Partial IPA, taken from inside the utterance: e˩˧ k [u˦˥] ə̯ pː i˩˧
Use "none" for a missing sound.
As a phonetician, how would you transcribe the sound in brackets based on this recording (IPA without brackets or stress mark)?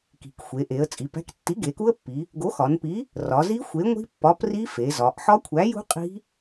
u˦˥